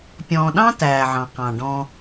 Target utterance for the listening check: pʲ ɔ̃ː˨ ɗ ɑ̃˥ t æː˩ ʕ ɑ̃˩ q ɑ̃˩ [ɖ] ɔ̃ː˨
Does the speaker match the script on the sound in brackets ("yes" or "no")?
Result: yes